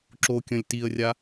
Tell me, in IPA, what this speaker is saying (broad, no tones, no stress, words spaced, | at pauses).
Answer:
ǁo kʲɐ̃lʲtiə̯rʲa